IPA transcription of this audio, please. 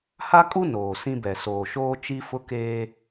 ha˦kʼu˦ noː˨sĩ˦bɛ˨ soː˨ʃoː˦ t͡ʃi˦fʊ˦ keː˦

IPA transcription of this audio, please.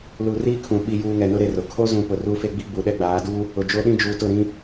lu˨riː˦ kʰũ˨ ɓi˨juː˨ ŋɛ˨nʊ˦ɾe˨rʊ˨ kʰo˦zũ˨ pʊ˨ru˦fe˦ɡ͡bi˦ ɡ͡bu˨ɗɛ˦ɡ͡baː˨˦ du˦ | ʊ˨d͡ʒo˦ɗĩ˦ d͡ʒuː˨tʊ˦˨ɾĩ˦

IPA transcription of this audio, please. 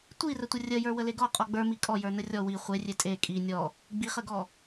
tʷirətʷə rʲəjə˞ wəleɡɔ qʼɔɡ͡bə˞mi kʼɔjə˞ nərʲɔ wi χʷerʲe tʼe kʼi nʲɔ | ɡ͡biχəɡɔ

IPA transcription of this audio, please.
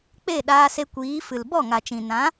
k͡pe˦˨ɗaː˧se˧kʷiː˨˦ fɨ˨l bɔ˦˨ŋa˨t͡ʃĩ˨ nã˨˦

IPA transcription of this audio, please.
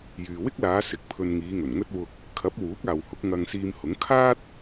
jyː˨wɪ˥k̚laː˨˧ sɪ˨˥k̚pʰɵ˧n ŋiː˨˧ŋɵ˨˩nŋɵ˥t̚ wʊ˧k̚ | kʰɐ˨˥p̚ wuː˨˥k̚aː˨whʊ˨˥k̚ ŋɐ˧ŋsiː˧mhʊ˨˥ŋ kʰaː˥t̚

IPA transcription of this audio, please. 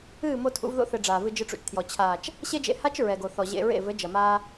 ɨː˦˨mo˧tʰṵ˨˦v ðo̰˧θɘ˨ ɖ͡ʐaː˨vɨ˧ d͡ʒɨ˧ʈ͡ʂṵ˨t͡ʃtʰjɔ˨ t͡ɕʰaː˨t͡ʃ | ɕe˦d͡ʒḛ˧ha˦t͡ʃ ɹɛ˨ɡo˨θɔ˨ ʑḛ˧ɹḛ˦˨ vɘ˨˦d͡ʒɐ˨maː˧

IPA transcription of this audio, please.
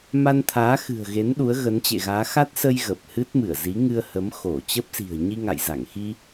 ma˧nt̪ʰaː˨˦xɨ̤˨˩ə̯ɣe˨˦n ɗu˨˦ə̯ɣə˨˦nt͡ɕḛ˧˨ɣaː˨˦ xa˦˥t̚sə˧j ɣə˨˩p̚ hɨ˦˥t̚mɨ˧˩ə̯ zi˨˦ŋɨ˧ə̯hə˨˦m xo˧˩t͡ɕə˦˥p̚si̤˨˩ə̯ ɲi˧ŋa̰˧˨jza˧˩ŋ xi˧

